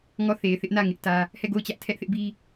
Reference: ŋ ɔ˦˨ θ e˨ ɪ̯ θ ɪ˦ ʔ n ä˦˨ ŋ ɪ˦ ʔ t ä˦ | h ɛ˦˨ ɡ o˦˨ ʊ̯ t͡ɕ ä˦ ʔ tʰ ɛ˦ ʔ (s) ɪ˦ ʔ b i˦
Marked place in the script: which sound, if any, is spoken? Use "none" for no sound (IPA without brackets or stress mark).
θ